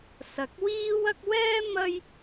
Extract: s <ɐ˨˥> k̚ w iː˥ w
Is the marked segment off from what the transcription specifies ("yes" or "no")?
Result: no